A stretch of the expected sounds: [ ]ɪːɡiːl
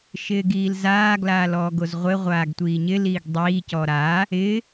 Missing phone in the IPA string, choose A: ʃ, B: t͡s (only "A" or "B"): A